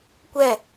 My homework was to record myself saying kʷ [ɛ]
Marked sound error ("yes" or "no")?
no